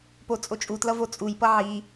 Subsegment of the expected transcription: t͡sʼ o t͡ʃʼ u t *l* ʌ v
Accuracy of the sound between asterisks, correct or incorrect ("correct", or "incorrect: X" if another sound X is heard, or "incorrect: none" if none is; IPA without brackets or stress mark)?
correct